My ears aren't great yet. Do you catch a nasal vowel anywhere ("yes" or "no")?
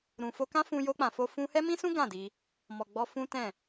yes